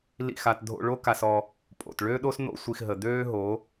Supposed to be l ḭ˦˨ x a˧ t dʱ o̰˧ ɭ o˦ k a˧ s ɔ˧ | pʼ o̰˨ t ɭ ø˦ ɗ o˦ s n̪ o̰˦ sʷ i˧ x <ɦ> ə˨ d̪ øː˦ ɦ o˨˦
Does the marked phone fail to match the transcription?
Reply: no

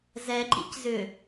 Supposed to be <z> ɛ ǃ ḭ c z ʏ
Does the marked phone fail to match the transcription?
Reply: no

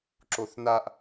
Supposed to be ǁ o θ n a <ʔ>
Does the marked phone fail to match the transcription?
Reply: no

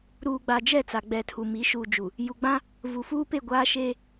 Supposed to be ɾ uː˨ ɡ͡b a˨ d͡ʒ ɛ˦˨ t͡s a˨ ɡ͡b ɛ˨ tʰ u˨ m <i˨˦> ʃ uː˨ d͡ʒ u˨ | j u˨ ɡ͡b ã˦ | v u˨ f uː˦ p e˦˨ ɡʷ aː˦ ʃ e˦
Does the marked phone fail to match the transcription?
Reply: no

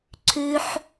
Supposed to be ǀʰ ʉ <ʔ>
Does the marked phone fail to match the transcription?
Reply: yes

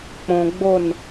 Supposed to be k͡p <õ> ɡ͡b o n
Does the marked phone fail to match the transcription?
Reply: no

